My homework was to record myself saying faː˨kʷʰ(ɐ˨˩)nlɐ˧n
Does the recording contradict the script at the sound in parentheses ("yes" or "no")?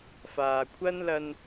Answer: yes